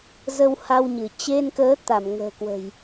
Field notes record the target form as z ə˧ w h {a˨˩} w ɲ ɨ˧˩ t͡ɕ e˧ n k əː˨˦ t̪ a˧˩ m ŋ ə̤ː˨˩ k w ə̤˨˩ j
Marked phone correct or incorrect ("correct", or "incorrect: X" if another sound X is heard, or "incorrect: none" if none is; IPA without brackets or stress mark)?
incorrect: a˧